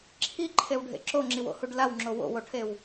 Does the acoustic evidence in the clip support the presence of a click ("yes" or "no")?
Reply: yes